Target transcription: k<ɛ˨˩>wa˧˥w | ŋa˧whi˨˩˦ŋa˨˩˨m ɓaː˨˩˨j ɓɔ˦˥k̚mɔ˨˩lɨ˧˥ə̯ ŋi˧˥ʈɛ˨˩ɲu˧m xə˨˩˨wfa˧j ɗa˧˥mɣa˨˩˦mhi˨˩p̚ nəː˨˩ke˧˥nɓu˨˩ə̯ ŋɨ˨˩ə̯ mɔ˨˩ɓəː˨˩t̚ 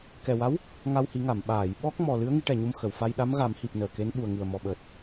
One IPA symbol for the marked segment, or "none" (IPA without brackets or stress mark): ɛ˨˩